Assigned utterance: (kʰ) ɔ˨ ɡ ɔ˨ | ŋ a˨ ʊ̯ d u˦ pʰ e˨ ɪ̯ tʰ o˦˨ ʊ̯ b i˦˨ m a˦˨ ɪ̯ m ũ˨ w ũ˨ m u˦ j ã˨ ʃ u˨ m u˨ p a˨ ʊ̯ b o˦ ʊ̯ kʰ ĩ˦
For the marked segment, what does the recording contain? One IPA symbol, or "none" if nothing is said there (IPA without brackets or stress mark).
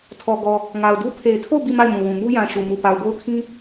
tʰ